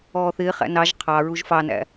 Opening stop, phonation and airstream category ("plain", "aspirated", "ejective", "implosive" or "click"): aspirated